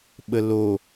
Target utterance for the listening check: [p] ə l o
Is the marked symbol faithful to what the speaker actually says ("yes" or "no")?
no